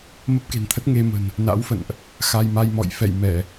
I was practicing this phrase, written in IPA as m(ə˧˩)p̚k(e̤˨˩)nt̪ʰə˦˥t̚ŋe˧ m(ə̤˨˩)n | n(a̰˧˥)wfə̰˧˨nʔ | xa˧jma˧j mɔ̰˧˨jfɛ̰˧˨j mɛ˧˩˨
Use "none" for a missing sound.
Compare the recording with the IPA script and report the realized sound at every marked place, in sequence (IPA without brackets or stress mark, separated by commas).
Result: ə˦˥, e̤˨˩, ə̤˨˩, a̰˧˥